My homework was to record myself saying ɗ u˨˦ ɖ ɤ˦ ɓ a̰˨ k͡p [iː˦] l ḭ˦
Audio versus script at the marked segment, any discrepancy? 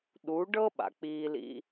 no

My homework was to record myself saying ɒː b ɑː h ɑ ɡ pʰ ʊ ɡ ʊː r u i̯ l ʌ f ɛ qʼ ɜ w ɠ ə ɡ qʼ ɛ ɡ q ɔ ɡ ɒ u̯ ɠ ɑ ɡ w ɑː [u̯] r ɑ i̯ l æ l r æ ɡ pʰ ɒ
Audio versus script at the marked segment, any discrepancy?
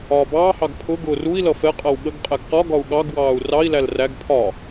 no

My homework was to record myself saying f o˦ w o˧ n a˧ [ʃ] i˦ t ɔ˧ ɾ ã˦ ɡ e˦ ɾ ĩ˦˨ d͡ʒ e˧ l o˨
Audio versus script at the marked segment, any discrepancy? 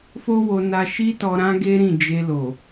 no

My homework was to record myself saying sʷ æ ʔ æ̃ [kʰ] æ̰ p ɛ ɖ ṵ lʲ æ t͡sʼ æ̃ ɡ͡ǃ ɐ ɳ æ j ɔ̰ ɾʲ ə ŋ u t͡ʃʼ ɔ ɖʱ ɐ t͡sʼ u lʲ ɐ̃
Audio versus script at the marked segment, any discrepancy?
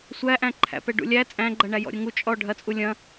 yes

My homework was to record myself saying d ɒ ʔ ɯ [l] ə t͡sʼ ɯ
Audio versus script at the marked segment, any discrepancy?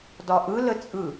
no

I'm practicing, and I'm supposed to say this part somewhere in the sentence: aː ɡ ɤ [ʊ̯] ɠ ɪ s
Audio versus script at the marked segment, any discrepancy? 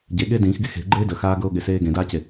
no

